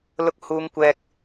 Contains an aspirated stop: no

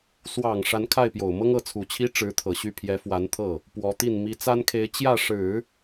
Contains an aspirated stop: yes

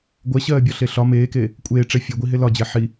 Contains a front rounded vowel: no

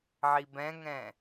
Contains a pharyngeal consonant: yes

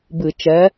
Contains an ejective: no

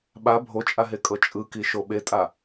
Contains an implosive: yes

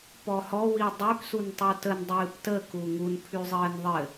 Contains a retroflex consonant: no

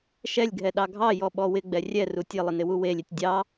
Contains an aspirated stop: no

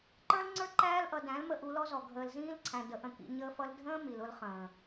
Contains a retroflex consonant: no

